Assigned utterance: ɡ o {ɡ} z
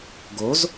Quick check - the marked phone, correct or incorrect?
incorrect: none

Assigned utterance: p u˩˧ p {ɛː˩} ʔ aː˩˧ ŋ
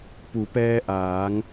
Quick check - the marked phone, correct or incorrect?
incorrect: ɛː˧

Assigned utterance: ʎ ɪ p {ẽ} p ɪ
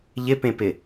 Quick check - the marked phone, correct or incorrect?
correct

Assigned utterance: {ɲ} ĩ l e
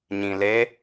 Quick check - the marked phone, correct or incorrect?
correct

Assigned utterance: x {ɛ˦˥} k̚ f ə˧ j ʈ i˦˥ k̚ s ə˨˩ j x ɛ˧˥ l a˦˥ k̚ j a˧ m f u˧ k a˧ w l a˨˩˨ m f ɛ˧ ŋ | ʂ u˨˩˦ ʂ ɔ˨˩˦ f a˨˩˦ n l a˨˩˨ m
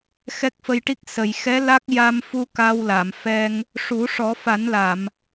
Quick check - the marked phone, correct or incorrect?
correct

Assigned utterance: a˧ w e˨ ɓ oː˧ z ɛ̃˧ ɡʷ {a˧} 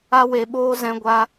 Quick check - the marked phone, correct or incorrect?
correct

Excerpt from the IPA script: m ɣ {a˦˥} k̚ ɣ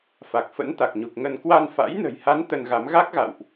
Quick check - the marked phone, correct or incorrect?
correct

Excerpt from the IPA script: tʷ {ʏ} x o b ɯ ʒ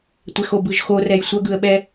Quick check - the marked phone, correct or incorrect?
incorrect: ɛ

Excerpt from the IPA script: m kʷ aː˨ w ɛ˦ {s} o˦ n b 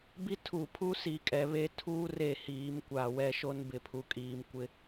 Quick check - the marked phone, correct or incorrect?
incorrect: ʃ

